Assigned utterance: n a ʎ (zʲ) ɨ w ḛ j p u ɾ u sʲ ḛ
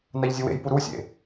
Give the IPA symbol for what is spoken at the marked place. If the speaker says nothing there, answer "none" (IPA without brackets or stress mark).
zʲ